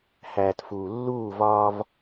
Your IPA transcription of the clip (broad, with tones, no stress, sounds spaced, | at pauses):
h æː˨ t f uː˨ lː uː˦˨ v ɒː˦ v